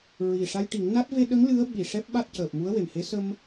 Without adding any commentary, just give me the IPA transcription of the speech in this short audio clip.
ɹ i˨˩ ʂ a˧ j ʈ i˨˩˦ ŋ n a˦˥ t̚ v e˧ ɗ ə˧˥ ŋ l ɨ˧˥ ə̯ ɓ i˨˩ ʂ ɛ˦˥ p̚ ɓ a˦˥ t̚ c əː˨˩ p̚ m u˧˥ ə̯ w e˨˩ m h e˧˥ s ə˧ m

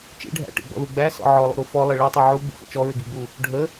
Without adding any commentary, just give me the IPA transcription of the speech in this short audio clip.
t͡ʃ ḭ ɖʱ æ̰ ʈ ḭ ɡ͡b ɔ̰ ð u ɡ͡b æ s ɔ̰ ʕ ɔ lˠ ṵ ɾ u f ɔ lˠ ɪ ɭ i tˤ u ʕ u ɡ͡b ṵ x ə̰ t͡ʃ ɔ ɹ ɪ ɡ i ɡ͡b u | ɖʱ ə

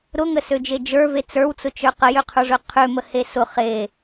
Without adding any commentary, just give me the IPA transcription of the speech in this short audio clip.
ɾ ʊ ŋ ə s ø d͡ʒ e d͡ʒ ə˞ v e t͡s ə˞ w t͡s ʊ t͡ʃ ə˞ q ə j ø qʰ ə˞ ʐ ø qʰ ø m ə h e s ʊ χ e

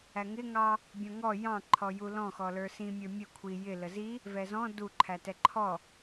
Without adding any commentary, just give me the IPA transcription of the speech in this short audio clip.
æ ŋ ɪ ŋ ɑ | bʲ ɔ̃ ŋ ɔ j ɑ̃ ǃʰ ɔ j u l ɔ̃ x ɔ l ə˞ s ĩ mʲ ə˞ mʲ ə kʷʰ i j ɪ l ə z i | v ɛ z ɔ̃ d u ǃʰ æ t ɛ ǃʰ ɔ

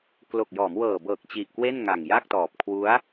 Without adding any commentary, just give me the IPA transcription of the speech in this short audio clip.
k l o˨˩ k̚ j ɔː˩˦ m w ɤː˨˩ b ɤː˨˩ k̚ t͡ɕ i˨˩ ʔ k w e˥˩ n ŋ a˨˩ ŋ j a˥˩ k̚ t ɔː˨˩ p̚ kʰ w u˦˥ a̯

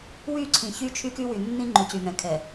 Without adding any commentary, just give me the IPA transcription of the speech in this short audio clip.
w y˦˨ ǀʰ ĩ˨ ç y˦ t͡ʃʰ y˦ k y˦ w y˨ nː ĩ˦ ŋ͡ǃ ʏ˨ c y˨ ŋ ɛ̃˨ kʰ ɛ˨

